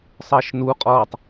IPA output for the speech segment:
sˤəːʃnu qʼɔːtˤ

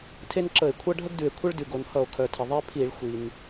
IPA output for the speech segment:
tʰe˦nǁə˧˩˧e̯kʷʰʌ˦ ɖʱə˦ɡdʉ˩e̯kʷʰə˦ɭ dʉ˩ɡo˩nhʌ˧˩˧o̯ kʰœ˩tʰə˩ ðˤe˦pʰi˧˩˧ɭ xʷi˩n

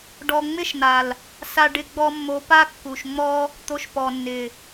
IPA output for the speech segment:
ɖɔ˨ŋ͡mɪ˦ʃ n̪a˨l | sa˧ɖɪ˧ ɡ͡bɔ˧mːo˨˦pa˦ kːu˨ʃŋ͡mɔ˦ | t̪o˧ʃpɔ˨nːɪ˨

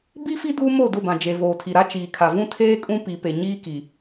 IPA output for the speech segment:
bi˦fi˦ duː˦mo˦˨dʊ˦˨bã˨ d͡ʒe˨voː˨tʰi˨ɾa˦ t͡ʃiː˨kʰa˨ vũ˦tʰeː˦kʼũ˦ pi˨pe˨ ɲiː˦ki˨

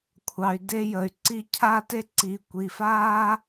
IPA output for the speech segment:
kʷʰɑ˨y̯de˧jə˨y̯ǀi˧ cʰa˦te˦ ǀi˨kʷi˨faː˦

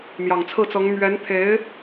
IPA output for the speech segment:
mjɑ˨˩ŋt͡sʰɹ̩˥˩t͡sɤ˧˥ŋ mɥɛ˧˥nt̪ʰe˧˥ɪ̯

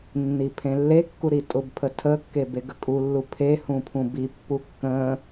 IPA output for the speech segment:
nːipʰẽlːekːu ɾitʼʊbpʰə tʰəkːe beɡəkʼulːu pʰe hũpʰũbipːu kːə̃

